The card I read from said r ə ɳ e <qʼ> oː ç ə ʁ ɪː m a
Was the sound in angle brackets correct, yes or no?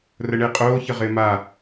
yes